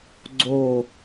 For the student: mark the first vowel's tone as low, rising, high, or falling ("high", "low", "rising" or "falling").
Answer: falling